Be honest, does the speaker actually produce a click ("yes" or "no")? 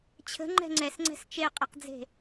yes